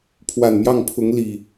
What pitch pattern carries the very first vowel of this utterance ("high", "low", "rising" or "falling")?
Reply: low